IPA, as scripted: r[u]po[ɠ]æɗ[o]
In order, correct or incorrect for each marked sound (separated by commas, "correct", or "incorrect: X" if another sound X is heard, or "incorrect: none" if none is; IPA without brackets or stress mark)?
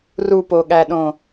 correct, correct, incorrect: õ